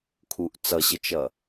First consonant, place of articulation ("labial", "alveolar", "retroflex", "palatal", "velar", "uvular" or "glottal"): velar